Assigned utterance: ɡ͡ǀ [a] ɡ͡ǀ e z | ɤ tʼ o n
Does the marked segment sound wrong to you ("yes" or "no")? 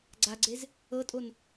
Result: no